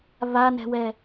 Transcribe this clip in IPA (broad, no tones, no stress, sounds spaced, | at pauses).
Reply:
β a n ɛ̤ w ɛ